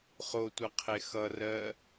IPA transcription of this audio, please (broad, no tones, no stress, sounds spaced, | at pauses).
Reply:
χ o tʷ ʌ qʰ e x ʌ r ɜ